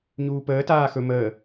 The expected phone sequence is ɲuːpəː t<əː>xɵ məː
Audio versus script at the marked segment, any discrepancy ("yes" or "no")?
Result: yes